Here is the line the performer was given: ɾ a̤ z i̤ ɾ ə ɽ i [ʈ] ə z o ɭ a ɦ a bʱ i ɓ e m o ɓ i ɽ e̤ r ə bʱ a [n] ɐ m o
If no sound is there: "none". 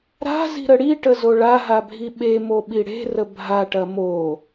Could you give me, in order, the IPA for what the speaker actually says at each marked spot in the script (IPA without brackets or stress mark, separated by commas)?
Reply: ʈ, ʈ